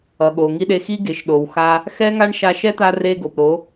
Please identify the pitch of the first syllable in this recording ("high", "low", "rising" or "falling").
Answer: low